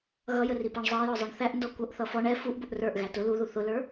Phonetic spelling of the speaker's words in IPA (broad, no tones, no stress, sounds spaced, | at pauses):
ɣ ʌ j ə r i p æ ɳ zˤ ɑ j ɔ zˤ ɛ ɳ θ æ ʔ n d ɔ kʷ ʌ ʔ θ ʌ f ɔ ɳ ɛ f u ʔ b ʊ ʔ r ə˞ ʔ ɣ æ t ʊ l u ð u θ ʊ l ə˞